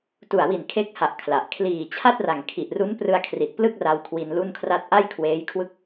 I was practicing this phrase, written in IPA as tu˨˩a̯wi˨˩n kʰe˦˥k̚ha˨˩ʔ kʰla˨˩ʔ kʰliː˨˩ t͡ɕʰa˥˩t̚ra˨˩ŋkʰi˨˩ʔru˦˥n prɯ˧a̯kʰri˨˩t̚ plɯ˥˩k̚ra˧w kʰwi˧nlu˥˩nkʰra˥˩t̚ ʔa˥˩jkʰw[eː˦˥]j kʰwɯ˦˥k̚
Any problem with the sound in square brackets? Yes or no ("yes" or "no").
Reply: no